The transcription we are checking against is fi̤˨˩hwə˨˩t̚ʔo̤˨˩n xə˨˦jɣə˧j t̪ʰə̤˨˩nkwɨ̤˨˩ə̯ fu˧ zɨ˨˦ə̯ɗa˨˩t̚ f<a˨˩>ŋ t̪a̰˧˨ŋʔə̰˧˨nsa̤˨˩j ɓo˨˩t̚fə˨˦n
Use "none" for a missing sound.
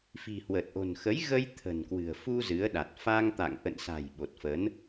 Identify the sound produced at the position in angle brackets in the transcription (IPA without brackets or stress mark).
a˧